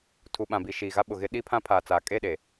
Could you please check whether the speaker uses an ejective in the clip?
yes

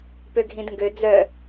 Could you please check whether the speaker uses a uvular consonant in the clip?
no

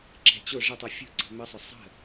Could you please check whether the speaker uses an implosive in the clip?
no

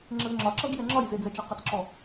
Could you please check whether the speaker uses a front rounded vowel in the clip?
no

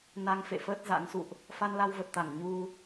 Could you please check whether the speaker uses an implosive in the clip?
no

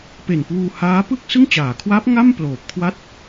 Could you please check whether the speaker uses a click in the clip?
no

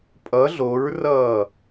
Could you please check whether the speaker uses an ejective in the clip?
yes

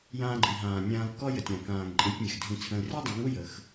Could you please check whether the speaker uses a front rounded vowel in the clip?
no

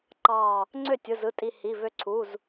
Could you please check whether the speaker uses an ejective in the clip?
yes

